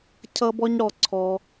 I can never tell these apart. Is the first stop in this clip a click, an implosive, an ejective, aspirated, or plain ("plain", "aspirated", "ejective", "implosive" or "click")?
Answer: aspirated